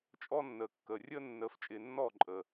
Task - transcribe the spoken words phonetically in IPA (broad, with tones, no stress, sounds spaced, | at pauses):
t͡ʃʼ ɔ˦ nː əː˨ kː əː˨ rʲ əː˦ nː əː˧ f t͡ʃʼ ɪː˧ nː ɔː˦˨ ǃʼ əː˨